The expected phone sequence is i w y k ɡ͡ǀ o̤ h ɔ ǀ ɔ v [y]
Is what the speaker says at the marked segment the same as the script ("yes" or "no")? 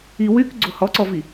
no